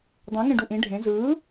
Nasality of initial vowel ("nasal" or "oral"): nasal